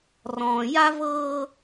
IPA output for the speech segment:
r ɔ̃ː˨ j a˦ v ɤː˦

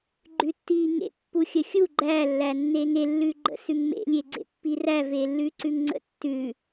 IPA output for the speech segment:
ɡ͡ǃ ʉ tː i ŋ ḛ pː u xʲ ə xʲ u ɡ͡ǃ æ lː æ nː e ŋ e lː ʉ ɡ͡ǃ ə̰ s ʉ ŋ m ḛ lʲ e ɡ͡ǀ ḛ pː i r æ v e lː ʉ ǀ ʉ ŋ ŋ͡ǀ ə̰ tː ʉ

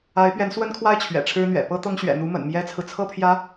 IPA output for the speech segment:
a˧˥ ɪ̯ p ɥ ɛ˧˥ n s w ə˥ n kʰ w a˥ ɪ̯ t͡ɕʰ ɥ ɛ̰˨˩ ʈ͡ʂʰ ɻ̩˥ n̪ ɥ ɛ̰˨˩ p ɤ˥ t̪ ɤ˥ ŋ ɕ ɥ ɛ̰˨˩ n̪ u˧˥ m ə̰˨˩ n m j ɛ˥ t͡sʰ ɹ̩˨ t͡sʰ ɤ˥ pʰ j ä˧˥

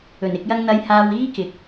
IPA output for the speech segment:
ɵ˨˩ n ɪ˨˥ k̚ j ɐ˥ ŋ n̪ ɐ˥ j h aː˥ w iː˥ k ɪ˨˥ k̚

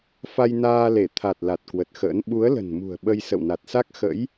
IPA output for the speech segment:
f a˧ j n aː˧ l e˧˩ t̪ʰ a˨˩ t̚ l a˨˩ t̚ k w ə˨˩ t̚ x ə̰ː˧˥ n ɓ u˨˦ ə̯ l ə̤˨˩ n m ṳ˨˩ ə̯ ɓ ə˧ j s ə̰˧˨ w n a˨˩ t̚ s a˦˥ k̚ x ə̰˧˥ j

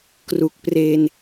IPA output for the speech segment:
k r u˨˩ k̚ p r e˧ n

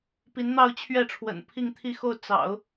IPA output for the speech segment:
p i˧˥ n n̪ ɑ˥˧ ʊ̯ t͡ɕʰ ɥ ɛ˥˩ ʈ͡ʂʰ w ə̰˨˩ n pʰ i˥˧ ŋ t̪ʰ i˥˧ x o˥˩ ʊ̯ t͡s ɑ̰˨˩˦ ʊ̯

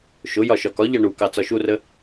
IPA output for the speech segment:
ʃ ʊ j ɒ ʃ ɒ k ɒ ʎ ɑ ɳ u k ɑ t͡s ɒ ʃ u r ə

